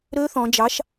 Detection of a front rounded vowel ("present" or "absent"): present